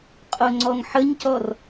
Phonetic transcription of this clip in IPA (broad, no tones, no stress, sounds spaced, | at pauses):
qʼ o ŋ͡ǀ ɔ ŋ ħ ə ɲ c ɔ r